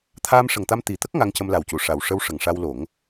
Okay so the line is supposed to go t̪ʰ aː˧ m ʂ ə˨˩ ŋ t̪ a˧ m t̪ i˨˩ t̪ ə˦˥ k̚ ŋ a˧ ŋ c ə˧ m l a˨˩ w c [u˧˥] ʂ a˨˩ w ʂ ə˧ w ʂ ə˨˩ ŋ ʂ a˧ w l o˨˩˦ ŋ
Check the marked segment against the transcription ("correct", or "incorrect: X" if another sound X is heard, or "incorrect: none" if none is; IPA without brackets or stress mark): incorrect: u˨˩˨